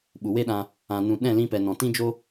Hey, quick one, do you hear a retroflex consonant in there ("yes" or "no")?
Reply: no